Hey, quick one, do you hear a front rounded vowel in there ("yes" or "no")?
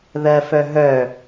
yes